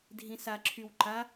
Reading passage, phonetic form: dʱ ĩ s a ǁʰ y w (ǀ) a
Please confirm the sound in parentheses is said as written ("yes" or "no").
no